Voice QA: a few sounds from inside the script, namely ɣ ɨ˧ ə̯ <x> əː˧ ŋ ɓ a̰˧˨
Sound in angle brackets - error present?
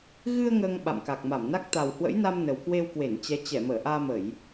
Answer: yes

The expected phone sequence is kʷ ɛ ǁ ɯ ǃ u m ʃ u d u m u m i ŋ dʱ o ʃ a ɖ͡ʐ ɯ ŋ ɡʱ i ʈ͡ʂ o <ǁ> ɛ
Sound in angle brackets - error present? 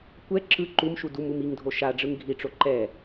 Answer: yes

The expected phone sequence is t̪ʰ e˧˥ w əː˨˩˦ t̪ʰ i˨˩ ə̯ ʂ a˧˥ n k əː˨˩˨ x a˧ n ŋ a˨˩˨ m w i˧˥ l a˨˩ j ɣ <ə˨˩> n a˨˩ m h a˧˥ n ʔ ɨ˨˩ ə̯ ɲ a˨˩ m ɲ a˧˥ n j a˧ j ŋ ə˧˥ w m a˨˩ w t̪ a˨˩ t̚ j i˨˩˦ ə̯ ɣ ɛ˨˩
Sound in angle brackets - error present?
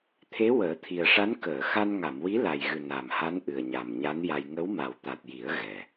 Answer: yes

